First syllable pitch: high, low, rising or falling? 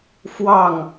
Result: falling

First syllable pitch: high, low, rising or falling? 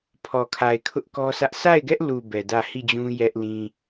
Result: low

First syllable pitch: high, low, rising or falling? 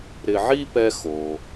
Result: low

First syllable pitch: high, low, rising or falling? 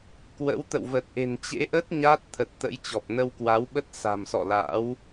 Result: rising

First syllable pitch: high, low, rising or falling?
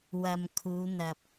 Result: low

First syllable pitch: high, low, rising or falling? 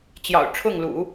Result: low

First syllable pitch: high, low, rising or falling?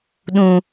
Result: low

